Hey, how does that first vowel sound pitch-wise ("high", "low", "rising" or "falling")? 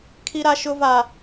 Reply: high